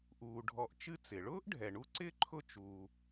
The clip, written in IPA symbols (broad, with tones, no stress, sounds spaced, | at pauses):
ʔ uː˩ ɖʱ ɔ˨ ʔ t͡ʃ ɨ˦ t͡s ɪ˩ ɭ ʊː˥ ʔ ɖʱ ɛ˩ ɳ u˦ ǀ ɪː˥ ǃʰ ʊ˦ t͡ʃ uː˩